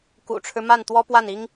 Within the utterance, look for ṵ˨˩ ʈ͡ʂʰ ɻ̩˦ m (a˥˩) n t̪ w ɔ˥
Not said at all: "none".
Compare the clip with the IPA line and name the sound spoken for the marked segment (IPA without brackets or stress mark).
a˥˩